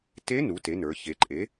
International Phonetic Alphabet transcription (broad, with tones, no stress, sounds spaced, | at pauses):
t e˧˥ n u˩˥ t e˩˥ n ə˞˩˧ ç e˩˧ ǃʼ e˩˥